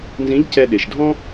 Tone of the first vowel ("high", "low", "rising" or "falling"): rising